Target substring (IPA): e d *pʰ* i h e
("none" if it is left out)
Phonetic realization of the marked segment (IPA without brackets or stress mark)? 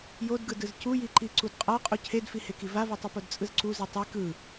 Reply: f